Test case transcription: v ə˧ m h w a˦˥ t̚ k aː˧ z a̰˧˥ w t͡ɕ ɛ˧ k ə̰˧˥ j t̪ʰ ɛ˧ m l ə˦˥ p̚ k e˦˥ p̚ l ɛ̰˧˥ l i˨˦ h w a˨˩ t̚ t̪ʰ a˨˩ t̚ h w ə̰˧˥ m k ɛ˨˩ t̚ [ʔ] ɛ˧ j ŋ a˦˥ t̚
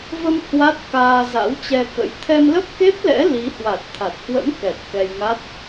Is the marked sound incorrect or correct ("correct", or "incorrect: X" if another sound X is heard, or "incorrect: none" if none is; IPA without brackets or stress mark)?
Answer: incorrect: k